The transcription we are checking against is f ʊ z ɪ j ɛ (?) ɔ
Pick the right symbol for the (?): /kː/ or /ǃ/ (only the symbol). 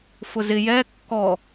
kː